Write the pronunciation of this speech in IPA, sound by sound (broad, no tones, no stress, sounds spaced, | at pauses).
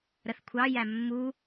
ɾ ə θ kʷʰ ɑ j æ mː u